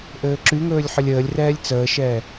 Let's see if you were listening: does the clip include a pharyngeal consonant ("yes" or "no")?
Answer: yes